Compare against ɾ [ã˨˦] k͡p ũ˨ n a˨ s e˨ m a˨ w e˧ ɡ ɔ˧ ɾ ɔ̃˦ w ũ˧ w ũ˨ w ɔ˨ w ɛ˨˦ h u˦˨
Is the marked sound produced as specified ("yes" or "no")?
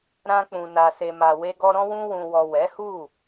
no